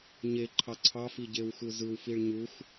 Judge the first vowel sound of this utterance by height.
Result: mid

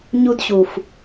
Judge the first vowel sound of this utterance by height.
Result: high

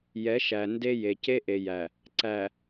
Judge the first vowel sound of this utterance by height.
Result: mid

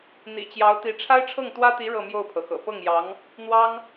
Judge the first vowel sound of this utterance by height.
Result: high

